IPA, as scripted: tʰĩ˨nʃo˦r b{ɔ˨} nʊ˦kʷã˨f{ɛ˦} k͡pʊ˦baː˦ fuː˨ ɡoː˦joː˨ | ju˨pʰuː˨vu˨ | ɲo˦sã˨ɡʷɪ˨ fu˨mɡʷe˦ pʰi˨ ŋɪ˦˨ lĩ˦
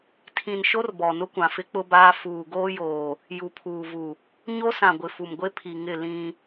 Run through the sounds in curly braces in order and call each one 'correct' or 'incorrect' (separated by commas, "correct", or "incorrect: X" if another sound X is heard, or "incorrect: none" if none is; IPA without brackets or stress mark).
correct, incorrect: ɪ˦